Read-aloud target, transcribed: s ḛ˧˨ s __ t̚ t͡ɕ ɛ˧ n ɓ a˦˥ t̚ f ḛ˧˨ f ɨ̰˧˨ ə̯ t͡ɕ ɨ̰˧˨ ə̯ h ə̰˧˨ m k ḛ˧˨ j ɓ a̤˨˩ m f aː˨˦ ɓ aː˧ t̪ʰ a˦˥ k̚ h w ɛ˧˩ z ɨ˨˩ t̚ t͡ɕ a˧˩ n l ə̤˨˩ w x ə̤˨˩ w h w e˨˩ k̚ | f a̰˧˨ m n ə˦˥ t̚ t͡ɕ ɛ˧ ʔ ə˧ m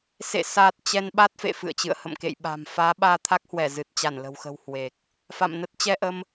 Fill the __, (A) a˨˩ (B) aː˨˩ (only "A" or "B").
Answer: B